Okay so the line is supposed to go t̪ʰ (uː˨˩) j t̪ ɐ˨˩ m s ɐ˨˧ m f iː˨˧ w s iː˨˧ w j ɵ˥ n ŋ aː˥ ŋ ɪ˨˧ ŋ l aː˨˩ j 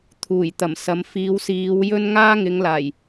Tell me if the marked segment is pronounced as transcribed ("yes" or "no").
yes